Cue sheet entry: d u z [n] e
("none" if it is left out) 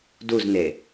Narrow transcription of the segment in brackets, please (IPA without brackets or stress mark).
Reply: n